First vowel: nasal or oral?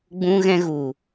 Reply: nasal